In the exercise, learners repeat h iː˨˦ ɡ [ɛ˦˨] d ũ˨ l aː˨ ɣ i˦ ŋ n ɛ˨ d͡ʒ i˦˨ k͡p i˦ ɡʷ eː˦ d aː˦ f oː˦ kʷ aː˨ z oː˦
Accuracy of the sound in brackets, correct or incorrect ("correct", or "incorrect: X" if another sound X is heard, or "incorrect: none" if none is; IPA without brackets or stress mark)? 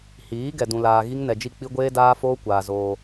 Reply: incorrect: ɛ˨